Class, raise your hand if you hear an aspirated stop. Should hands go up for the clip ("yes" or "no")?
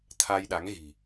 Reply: yes